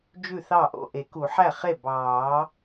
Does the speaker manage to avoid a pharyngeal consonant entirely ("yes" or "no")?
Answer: no